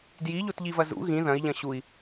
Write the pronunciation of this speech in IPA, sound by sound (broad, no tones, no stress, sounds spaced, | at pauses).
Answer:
d j i ʎ o t ʎ i v ɐ z ṵ ɣ ĩ ð ɐ̃ i̯ ʎ ɐ̃ ɕ u i̯